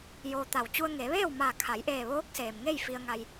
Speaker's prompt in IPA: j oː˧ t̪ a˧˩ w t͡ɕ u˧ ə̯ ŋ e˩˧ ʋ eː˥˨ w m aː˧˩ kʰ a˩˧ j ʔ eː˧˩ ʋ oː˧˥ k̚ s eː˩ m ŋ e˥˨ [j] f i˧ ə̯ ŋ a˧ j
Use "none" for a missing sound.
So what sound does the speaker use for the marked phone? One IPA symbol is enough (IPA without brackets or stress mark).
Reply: j